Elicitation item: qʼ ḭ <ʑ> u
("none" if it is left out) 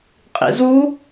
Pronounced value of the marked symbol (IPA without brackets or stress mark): z